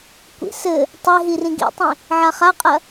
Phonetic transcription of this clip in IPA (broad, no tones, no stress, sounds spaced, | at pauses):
kʷ ḭ s ɘ | tˤ e ɦ i r ĩ ɡ ḭ tˤ ĩ | ʕ a χ a qʼ ɐ